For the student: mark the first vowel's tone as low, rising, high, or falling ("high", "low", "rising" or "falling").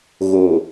low